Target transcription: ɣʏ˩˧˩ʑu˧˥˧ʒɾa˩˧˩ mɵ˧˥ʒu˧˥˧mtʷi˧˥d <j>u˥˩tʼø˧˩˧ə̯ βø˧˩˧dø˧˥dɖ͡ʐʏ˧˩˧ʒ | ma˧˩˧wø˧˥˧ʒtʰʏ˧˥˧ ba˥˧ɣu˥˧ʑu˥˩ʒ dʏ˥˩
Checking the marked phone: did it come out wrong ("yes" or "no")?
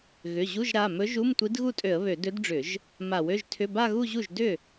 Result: yes